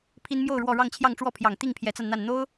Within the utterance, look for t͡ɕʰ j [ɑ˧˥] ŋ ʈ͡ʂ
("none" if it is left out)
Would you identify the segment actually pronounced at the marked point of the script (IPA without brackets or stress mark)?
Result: ɑ˥˧